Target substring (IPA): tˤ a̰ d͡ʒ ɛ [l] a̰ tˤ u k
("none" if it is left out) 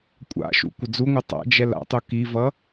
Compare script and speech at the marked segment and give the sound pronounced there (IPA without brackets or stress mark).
l